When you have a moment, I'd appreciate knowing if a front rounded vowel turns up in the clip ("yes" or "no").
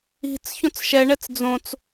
no